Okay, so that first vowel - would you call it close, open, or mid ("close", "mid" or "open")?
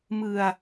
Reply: close